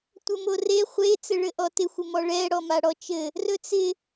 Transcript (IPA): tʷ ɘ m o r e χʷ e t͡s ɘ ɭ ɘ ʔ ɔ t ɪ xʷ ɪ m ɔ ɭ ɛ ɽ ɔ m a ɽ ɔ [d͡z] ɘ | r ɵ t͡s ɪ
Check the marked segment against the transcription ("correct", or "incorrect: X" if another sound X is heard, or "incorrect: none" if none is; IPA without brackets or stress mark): incorrect: t͡ʃ